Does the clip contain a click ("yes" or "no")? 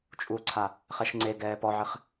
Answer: yes